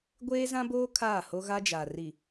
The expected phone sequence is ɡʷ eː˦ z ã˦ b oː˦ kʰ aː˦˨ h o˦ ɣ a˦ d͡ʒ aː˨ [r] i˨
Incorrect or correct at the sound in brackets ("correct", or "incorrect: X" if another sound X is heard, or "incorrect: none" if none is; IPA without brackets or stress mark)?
correct